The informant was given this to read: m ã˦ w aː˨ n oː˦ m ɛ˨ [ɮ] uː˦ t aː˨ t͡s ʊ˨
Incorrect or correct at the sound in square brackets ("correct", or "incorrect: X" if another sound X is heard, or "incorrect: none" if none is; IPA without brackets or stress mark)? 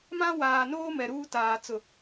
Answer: incorrect: ɾ